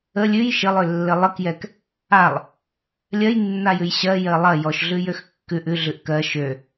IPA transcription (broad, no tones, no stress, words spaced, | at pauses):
ə lʲʉj ʃəlˠølːə lˠəkjɛk | alˠ | lʲɜjnːajʉj ɕɜjɜ lˠɐ jɔʃɮʉjøx kːʉʔ ʉɮʉʔ kɜ ʃø